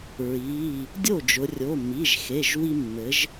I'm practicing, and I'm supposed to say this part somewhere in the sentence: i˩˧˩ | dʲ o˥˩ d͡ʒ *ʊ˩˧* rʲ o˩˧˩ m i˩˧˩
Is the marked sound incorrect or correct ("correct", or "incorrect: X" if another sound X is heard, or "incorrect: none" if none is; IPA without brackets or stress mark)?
correct